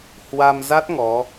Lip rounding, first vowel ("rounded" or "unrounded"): unrounded